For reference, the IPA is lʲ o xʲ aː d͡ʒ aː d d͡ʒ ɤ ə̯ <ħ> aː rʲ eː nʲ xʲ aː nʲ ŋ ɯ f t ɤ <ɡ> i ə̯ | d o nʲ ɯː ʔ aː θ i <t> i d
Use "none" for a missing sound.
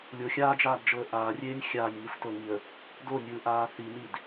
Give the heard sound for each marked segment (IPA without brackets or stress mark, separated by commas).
ʔ, ŋ, n